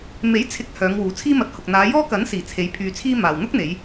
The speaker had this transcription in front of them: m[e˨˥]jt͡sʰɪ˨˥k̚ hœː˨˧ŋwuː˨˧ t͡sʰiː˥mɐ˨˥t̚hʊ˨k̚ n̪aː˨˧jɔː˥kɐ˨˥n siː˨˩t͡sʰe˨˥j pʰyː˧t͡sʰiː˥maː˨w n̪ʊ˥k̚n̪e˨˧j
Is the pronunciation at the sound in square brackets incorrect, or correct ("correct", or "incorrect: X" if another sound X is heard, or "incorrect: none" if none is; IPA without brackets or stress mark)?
correct